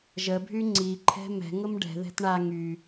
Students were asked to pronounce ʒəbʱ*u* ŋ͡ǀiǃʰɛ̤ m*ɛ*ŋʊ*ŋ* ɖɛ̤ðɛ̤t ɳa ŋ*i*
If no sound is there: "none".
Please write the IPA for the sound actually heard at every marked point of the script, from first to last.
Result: y, ɛ̤, m, y

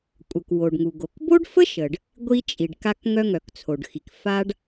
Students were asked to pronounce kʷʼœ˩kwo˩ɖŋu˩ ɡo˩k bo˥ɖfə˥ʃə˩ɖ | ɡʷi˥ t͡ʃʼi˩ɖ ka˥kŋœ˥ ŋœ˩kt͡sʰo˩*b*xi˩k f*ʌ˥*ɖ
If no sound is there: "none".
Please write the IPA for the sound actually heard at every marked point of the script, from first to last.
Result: ɖ, a˥

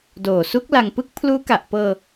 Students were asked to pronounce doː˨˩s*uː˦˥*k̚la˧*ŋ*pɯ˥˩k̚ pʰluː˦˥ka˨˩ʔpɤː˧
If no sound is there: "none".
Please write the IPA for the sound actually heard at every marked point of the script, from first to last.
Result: u˦˥, ŋ

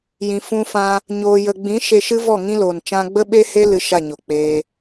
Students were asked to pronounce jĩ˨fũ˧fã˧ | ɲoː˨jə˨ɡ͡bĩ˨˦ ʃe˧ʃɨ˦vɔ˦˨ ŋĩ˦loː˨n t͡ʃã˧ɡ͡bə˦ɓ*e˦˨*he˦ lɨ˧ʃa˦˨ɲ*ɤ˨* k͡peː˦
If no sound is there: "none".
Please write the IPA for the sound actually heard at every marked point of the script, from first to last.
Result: e˦, o˨

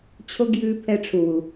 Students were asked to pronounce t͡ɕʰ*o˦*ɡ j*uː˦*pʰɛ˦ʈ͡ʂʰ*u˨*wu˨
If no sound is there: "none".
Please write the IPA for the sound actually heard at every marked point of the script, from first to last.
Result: o˦, ʉː˦, u˨

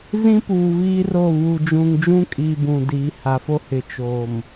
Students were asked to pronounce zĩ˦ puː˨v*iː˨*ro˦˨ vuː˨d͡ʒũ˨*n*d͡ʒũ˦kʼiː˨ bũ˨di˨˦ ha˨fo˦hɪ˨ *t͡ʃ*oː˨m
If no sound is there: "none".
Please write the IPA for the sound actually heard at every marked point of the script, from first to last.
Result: iː˦, ŋ, t͡ʃ

